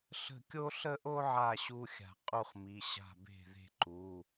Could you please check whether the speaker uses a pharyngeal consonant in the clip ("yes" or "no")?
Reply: yes